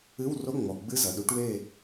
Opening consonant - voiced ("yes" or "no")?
yes